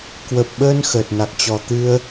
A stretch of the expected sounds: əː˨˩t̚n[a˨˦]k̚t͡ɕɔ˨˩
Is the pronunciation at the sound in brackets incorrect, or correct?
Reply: incorrect